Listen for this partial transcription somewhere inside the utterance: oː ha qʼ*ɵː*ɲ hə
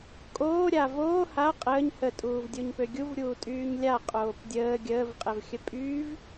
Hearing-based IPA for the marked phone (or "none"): əː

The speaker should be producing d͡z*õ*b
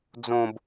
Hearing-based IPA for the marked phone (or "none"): õ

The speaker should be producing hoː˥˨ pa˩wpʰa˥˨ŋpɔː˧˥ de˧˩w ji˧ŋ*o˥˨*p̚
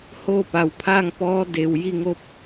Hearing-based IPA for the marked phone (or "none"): o˧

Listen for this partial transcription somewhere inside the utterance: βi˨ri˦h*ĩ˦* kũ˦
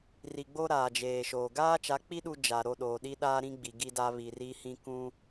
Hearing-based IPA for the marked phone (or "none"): ĩ˦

